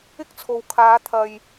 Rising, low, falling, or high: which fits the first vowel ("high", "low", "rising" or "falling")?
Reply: high